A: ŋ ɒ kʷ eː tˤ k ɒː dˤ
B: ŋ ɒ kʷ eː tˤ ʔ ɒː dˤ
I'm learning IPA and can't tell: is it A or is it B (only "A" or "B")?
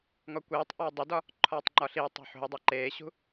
B